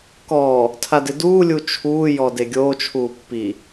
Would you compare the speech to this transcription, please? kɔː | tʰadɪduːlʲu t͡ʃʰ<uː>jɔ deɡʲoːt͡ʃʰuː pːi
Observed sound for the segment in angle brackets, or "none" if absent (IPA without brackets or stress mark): uː